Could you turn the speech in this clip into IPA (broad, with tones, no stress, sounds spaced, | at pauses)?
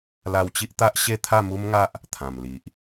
l a˧ w t͡ɕ i˦ ʔ t̪ a˦ ʔ ɕ e˥˧ t̪ʰ a˥˧ m u˦ m ŋ a˦ ʔ | t̪ʰ ã˨˩ m l i˨ ʔ